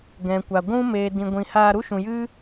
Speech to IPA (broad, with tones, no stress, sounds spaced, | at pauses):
ɡ ɛ̃˨ kʷ a˨ ɡʷ ũ˦ m eː˨ d ĩ˨ ɡʷ ĩ˨ h aː˧ ɾ u˦ ʃ ũ˨ j ɨ˦